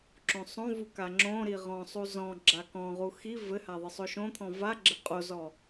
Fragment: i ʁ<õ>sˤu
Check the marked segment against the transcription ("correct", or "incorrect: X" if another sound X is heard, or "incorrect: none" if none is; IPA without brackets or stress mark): incorrect: ɔ̃